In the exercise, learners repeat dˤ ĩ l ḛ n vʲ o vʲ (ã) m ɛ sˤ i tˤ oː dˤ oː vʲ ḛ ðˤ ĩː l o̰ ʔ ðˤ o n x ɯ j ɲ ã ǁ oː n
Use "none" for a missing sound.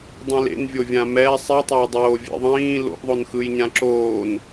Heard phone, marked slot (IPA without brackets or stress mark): ã